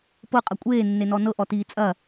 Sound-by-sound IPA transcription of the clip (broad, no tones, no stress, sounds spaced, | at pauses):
p ɤ qʼ ɐ kʷʼ eː nː e n ɔ n ɤ ʔ ɔ t iː t͡sʼ ɐ